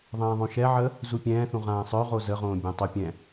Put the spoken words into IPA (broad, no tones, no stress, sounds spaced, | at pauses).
ðˤ ɛ̃ː ðˤ õ ʃ ɛ ʕ ə | z u pʲ ɛ̃ː θ ũ ʁ ãː sˤ œ ʁ o z ə ʁ õː bʲ ã tˤ o pʲ ɛ̃